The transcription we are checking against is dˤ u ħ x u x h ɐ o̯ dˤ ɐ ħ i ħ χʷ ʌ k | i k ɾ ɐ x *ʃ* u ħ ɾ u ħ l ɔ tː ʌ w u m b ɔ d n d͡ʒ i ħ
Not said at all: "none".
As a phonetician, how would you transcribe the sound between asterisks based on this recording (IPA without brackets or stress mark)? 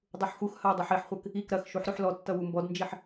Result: ʃ